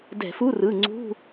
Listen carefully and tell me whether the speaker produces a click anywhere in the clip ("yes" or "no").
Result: yes